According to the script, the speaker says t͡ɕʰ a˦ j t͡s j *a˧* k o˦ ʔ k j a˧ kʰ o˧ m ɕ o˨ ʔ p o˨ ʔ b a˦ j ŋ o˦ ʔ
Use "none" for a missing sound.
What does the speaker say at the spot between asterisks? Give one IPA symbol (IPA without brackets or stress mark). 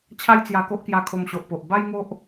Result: a˧